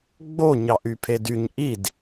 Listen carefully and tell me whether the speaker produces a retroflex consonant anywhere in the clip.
no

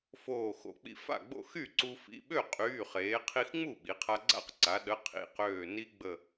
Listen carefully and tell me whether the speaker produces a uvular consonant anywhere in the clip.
yes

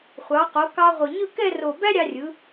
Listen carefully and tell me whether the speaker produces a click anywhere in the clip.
no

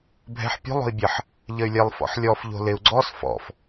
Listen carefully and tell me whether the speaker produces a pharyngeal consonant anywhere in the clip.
yes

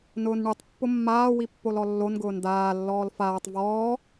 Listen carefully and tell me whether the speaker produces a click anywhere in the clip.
no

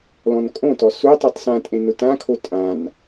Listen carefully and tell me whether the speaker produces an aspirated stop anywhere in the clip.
yes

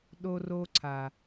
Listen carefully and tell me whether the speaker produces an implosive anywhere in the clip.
yes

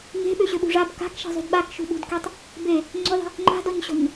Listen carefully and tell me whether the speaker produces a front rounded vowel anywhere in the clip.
yes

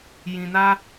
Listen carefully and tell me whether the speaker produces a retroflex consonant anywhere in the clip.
no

